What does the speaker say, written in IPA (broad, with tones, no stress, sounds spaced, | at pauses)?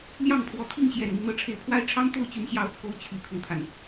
l j ɑ˥˩ ŋ pʰ w ɔ˧˥ t̪ʰ i˥˩ ŋ ɕ j ɛ˨˩ n m i˦ n̪ ɤ˧˥ ʈ͡ʂʰ e˧˥ ɪ̯ pʰ w a˥ ɪ̯ ʈ͡ʂʰ ɑ˥ ŋ t̪ o˥˩ ʊ̯ t͡ɕ y˧˥ n ɕ j ɑ˧˥ ʊ̯ t͡sʰ o˧˥ ʊ̯ t͡ɕʰ y˨˩ kʰ ʊ˦ ŋ t̪ʰ a˩ n